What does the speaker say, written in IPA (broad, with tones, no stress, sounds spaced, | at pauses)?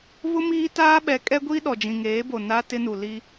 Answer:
β ʊ˦ m iː˦ t aː˦ ɓ ɛ˨˦ kʼ ɛ˦ ɡʷ i˦ ɗ ɔ˨ d͡ʒ ĩ˨ ŋ eː˨˦ b o˨ n a˦ t ɪ˦ n u˨ l i˦